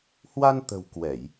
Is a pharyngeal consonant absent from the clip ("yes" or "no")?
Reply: yes